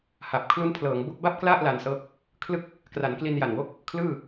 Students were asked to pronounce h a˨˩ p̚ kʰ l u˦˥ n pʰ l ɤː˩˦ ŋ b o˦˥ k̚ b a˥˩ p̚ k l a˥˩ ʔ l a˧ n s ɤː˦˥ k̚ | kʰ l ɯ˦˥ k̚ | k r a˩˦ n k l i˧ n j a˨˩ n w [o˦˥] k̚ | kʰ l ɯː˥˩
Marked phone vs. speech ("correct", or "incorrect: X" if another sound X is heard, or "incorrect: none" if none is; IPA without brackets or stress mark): correct